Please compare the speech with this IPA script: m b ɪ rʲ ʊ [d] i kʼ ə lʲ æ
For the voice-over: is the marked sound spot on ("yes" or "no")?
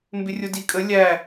yes